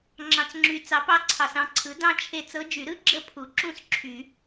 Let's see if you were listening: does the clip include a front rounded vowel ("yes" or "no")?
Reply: yes